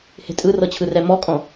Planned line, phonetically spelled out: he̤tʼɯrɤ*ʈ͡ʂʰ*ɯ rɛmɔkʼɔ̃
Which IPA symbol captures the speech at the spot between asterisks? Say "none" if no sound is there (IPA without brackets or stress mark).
t͡ɕʰ